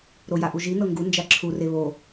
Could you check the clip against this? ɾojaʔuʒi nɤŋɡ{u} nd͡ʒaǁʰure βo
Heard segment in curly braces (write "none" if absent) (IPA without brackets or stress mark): u